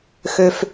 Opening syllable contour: low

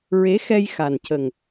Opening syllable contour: rising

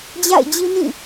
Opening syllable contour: falling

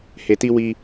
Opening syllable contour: low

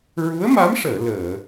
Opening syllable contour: rising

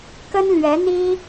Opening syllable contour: high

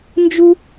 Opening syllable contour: high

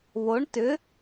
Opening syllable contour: rising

